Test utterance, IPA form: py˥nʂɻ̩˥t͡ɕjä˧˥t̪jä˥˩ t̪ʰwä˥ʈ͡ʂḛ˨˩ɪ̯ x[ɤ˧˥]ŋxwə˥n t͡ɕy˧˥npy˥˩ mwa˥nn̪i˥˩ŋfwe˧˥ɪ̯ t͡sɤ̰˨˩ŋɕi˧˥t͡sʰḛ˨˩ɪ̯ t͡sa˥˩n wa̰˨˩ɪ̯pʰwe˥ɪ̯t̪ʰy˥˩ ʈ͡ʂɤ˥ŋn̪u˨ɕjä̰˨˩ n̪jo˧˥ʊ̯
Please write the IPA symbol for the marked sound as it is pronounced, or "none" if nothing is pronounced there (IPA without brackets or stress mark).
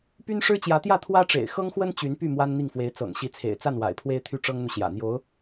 ɤ˥